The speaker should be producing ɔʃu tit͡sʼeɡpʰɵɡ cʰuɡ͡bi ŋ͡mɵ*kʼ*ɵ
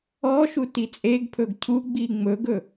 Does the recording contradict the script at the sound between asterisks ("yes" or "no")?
yes